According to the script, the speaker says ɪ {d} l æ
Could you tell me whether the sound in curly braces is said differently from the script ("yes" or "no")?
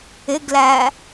yes